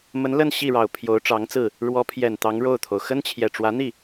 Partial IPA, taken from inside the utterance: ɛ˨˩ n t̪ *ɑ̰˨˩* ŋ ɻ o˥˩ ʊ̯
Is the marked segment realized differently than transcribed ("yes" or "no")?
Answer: yes